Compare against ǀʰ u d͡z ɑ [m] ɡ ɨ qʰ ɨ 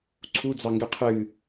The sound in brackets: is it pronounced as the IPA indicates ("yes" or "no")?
no